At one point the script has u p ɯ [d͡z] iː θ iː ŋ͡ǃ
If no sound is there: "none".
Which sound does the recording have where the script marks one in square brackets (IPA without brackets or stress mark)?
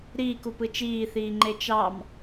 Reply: t͡ʃ